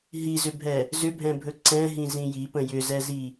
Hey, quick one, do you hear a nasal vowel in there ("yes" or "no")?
yes